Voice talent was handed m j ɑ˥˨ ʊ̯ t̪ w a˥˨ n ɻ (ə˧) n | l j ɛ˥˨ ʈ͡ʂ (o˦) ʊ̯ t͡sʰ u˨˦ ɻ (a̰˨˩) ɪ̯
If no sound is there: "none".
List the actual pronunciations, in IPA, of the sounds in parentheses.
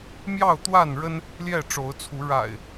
ə˦, o˨˦, a̰˨˩

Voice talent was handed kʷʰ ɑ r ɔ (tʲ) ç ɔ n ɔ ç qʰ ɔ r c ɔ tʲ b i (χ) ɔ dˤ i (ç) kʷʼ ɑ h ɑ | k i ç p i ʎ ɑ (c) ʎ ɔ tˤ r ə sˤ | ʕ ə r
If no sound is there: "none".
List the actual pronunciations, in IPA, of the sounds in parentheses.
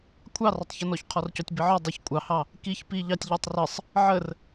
tˤ, ʕ, ç, tʲ

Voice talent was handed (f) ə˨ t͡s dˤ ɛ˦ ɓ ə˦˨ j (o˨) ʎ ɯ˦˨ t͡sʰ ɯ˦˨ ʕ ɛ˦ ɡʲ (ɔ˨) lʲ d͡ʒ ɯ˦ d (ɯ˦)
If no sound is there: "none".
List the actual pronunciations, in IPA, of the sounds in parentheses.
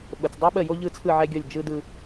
ɓ, o˦, ɔ˦˨, ɯ˦

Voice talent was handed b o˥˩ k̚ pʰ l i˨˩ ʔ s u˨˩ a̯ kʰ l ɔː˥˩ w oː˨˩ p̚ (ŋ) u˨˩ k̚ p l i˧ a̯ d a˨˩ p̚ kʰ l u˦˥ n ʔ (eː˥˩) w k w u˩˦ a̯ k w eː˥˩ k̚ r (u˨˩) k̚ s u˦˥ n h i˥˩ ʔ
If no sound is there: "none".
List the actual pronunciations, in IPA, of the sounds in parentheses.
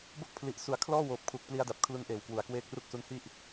kʰ, eː˨˩, u˥˩

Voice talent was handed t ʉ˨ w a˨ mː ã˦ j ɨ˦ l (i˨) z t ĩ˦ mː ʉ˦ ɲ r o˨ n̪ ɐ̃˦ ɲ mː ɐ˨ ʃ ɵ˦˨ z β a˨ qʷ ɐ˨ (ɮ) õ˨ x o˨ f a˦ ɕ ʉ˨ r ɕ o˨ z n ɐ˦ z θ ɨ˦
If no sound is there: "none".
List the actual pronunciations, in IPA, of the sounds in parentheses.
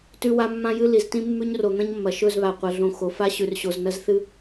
i˨, ɮ

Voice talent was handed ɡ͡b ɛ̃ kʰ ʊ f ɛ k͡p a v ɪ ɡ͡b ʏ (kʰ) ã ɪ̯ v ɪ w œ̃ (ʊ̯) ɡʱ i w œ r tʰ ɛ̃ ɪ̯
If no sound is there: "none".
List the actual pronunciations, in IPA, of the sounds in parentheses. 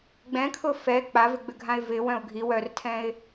ɡʱ, ʊ̯

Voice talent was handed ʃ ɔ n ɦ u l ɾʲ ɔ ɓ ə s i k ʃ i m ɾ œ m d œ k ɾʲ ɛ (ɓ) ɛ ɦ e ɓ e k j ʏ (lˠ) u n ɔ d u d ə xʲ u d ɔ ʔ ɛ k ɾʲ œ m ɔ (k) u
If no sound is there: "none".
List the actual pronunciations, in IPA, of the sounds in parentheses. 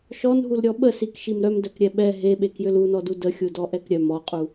ɓ, l, qʼ

